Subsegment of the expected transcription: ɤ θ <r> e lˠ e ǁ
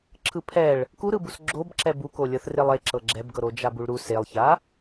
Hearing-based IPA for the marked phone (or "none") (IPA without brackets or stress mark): r